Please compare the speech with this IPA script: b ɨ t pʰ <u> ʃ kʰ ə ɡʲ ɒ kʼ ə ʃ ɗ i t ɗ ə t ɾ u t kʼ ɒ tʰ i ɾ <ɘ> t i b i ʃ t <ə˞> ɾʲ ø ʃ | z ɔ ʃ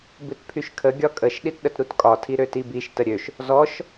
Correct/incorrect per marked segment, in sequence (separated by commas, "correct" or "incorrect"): incorrect, incorrect, incorrect